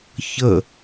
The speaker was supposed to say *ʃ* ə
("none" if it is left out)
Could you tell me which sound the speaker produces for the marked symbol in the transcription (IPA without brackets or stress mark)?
ç